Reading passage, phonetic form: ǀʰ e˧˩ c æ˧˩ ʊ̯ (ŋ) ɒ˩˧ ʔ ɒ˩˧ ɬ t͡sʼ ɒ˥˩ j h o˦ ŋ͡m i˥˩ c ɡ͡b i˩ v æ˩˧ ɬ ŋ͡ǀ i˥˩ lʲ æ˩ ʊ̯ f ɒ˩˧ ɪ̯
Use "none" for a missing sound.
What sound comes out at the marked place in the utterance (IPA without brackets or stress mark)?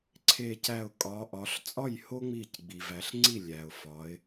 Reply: kʼ